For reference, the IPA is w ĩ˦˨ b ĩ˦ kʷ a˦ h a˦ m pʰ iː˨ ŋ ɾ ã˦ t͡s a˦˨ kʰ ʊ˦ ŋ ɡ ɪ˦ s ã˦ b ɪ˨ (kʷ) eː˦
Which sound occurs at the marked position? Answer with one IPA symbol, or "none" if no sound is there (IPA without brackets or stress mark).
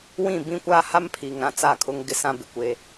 kʷ